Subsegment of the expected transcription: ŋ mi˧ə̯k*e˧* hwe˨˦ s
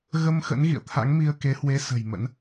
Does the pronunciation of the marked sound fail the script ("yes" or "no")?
yes